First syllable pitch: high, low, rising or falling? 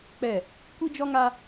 falling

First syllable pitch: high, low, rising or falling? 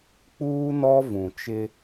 high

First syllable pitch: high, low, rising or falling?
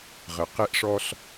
low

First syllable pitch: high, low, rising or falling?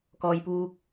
low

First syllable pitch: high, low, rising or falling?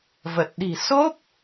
low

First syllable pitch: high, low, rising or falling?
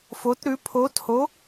rising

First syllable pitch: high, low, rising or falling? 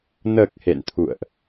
low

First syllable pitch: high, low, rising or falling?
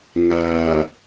low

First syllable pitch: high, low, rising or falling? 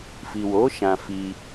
low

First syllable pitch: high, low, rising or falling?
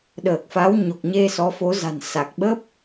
low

